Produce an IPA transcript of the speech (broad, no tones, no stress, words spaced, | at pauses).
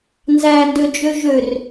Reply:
nzændød͡ʒø ʒør